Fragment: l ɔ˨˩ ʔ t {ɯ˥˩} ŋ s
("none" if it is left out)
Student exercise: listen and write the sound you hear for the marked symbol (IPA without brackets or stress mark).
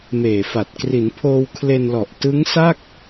ɯ˦˥